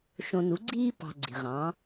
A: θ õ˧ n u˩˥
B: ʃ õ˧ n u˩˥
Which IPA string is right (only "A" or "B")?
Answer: B